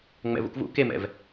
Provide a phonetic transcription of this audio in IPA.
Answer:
ŋ͡mɛ̰vṵkvṵ kemɛ̰v

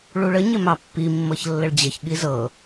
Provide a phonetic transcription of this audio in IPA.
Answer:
ɭuɭə ɲɪmɑpːi mːɤçlːəɭd͡ʑəç ɠizɤ

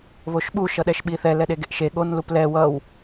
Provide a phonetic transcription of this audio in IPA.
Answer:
βoʃɓu ʃʌɗɛʃɓiθɛ lɛɗeɡeʔʃe ɠon luplɛ wʌw

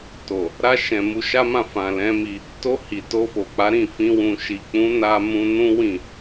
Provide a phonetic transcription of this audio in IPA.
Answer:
to˨ | ɾa˧ʃɛ̃˨ mu˧ʃa˦mã˦˨ fã˨lɛ̃˨˦mi˧ | to˧ hi˨to˧fo˨k͡pa˨˦ ɾĩ˦˨fĩ˧ wũ˨ʃi˨k͡pũ˨˦ na˧mũ˧nũ˦ wĩ˦˨

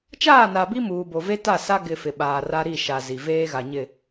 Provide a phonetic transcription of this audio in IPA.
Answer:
t͡ʃaː˦˨na˨bi˦ muː˨bo˨ve˦ta˦˨ sa˦ɡɪ˨ fɪ˨ɓaː˨ra˦ ɾi˦˨ ʃa˨ zi˨ veː˦ɣa˨ɲɪ˦˨

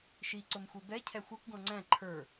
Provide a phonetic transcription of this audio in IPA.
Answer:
ʃi ǀʊmxʷibɛ cʰɛxʷɛkʷ ɡɔ̃ŋ͡ǀæ̃ ǃʰə˞

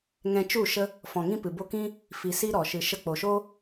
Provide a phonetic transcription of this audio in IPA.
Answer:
ŋɛ̃˧t͡ʃu˦˨ʃə˦ | fɔ̃˨ŋĩ˦pɨ˨ bo˧kĩ˦ | fi˨ si˦ɾɔ˨ ʃɨ˨ ʃə˧k͡po˨ʃo˦

